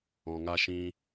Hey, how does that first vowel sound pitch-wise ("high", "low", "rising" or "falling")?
low